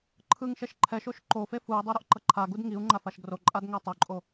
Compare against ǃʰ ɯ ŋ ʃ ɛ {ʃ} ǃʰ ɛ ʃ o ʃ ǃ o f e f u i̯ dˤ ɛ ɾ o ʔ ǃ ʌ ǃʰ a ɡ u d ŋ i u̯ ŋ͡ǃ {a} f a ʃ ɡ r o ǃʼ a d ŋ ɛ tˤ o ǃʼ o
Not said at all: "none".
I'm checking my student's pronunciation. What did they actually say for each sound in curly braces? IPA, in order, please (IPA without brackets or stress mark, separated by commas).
ʃ, a